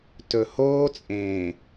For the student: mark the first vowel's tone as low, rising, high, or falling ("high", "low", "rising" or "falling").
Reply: low